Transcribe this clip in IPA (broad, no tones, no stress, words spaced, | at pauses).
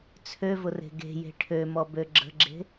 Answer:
t͡sʰøvʊre̤ ɡe̤je̤ ʈʰømɔbø ɡ͡ǁə̤ɡ͡ǁe̤